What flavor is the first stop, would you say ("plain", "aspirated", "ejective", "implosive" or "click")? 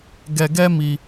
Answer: plain